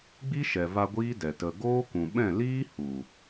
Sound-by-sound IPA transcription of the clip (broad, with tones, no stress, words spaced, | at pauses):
ɡ͡bi˦ʃɛ˨va˧ ɡʷiː˦dɛ˨ tə˨ɡoː˦kũ˨ ɓɛ̃˦˨liː˦hu˨